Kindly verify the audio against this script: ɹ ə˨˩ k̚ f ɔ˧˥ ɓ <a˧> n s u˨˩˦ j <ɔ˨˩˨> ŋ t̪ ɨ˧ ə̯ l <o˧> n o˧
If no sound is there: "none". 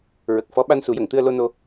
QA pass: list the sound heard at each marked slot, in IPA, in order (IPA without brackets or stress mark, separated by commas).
a˧, ə˨˩˨, o˧